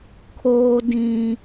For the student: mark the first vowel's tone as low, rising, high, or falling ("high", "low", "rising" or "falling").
high